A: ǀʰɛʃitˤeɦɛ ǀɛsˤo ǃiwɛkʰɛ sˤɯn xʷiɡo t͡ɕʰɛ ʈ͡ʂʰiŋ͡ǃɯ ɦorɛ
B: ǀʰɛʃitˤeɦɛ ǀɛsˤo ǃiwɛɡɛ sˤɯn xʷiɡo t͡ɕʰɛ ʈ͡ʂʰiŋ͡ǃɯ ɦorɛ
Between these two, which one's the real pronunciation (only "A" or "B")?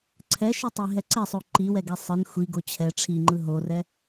B